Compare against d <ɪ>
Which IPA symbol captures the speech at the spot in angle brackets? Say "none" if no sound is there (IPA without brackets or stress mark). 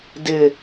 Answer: ɪ